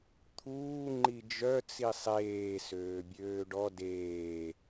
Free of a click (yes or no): no